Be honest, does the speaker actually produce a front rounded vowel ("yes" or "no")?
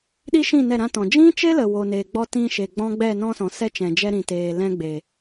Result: no